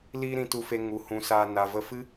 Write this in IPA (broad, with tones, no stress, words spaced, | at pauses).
liː˦ɾĩ˧tu˧fe˧ ŋu˨hũ˨˦saː˧ na˨və˧fɨ˦